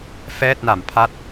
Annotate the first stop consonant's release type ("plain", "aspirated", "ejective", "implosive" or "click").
plain